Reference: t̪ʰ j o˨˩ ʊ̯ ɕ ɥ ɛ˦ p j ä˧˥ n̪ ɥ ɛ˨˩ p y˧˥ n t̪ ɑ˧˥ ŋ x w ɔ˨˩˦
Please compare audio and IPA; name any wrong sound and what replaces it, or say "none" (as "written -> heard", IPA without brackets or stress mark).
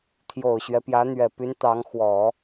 none